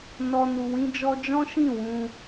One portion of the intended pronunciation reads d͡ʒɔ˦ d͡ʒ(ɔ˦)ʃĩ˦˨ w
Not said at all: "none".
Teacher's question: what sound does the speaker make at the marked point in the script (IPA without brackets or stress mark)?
ɔ̃˦